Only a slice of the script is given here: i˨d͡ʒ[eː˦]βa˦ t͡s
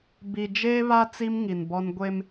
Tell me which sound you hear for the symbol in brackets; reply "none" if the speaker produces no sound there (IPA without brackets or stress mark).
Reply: eː˦